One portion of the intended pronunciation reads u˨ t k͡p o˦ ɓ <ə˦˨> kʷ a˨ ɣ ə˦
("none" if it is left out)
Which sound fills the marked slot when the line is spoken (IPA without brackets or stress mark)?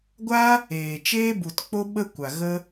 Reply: ə˦